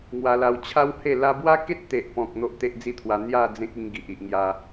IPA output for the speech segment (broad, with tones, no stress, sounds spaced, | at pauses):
ŋ w a˧ l a˧ w t͡ɕʰ a˦ w h e˥˧ l a˧ b w a˦ k e˦ t̚ t̪ e˨ ʔ p ɔ̃˨ k̚ n̪ o˦ ʔ t̪ e˦ ʔ d͡z i˥˧ t̪ʰ w a˧ n̪ j a˥˧ d͡z ẽ˦ k̚ i˧ ŋ ɡ i˨ ʔ i˨ ʔ ŋ j a˧